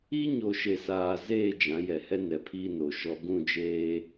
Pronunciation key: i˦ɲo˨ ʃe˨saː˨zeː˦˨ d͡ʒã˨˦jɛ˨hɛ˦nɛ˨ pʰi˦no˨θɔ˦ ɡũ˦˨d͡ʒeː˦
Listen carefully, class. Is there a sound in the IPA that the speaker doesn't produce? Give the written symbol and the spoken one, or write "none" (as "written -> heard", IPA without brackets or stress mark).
θ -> ʃ